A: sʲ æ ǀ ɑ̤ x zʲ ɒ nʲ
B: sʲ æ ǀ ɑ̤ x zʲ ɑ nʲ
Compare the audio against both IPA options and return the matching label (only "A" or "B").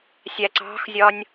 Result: A